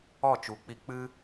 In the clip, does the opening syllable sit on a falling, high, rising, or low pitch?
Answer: falling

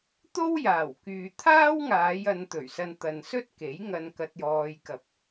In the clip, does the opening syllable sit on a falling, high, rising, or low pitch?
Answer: high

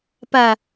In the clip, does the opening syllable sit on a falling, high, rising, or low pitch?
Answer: low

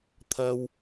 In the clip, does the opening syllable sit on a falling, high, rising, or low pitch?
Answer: high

